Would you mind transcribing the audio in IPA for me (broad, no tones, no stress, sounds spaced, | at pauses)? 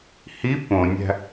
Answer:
h i p õ nʲ æ̤